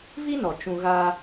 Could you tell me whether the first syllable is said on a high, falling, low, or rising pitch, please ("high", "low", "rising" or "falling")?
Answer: high